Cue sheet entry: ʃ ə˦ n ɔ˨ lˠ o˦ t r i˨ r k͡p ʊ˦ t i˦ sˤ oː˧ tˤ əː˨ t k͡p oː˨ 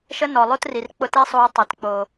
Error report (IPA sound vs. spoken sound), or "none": none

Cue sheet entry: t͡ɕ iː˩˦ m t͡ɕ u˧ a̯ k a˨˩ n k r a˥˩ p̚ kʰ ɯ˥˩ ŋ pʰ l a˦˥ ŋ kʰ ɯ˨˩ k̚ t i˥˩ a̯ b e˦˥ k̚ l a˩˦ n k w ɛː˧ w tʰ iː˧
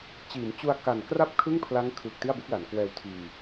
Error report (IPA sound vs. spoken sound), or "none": none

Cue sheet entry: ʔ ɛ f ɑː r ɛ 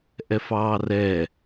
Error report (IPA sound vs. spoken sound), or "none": none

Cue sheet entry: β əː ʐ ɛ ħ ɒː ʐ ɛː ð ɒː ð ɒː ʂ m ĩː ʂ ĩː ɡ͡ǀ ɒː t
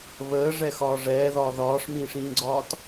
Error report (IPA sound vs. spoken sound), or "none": ħ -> x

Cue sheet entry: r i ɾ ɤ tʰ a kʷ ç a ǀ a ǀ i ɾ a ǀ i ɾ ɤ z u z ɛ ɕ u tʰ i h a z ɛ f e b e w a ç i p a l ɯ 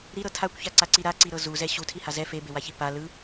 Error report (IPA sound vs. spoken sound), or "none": r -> ɾ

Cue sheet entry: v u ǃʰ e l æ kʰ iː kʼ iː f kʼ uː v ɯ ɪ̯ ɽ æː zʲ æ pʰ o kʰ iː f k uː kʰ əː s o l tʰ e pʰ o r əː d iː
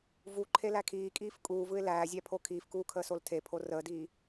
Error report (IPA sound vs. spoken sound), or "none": ɽ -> l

